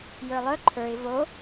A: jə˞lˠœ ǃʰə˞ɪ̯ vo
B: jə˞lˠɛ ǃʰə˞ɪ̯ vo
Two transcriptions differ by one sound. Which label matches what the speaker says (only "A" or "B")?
A